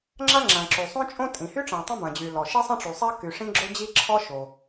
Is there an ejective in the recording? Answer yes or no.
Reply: yes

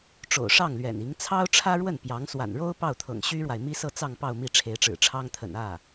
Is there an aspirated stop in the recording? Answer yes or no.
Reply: yes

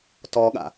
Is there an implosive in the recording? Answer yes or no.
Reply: yes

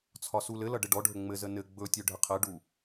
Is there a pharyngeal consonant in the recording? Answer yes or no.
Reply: no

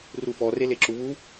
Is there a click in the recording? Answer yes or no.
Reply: yes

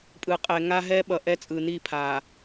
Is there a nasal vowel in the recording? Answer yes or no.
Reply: no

